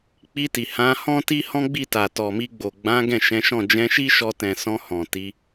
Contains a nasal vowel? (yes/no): yes